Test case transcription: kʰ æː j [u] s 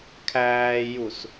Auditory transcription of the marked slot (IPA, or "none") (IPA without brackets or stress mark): u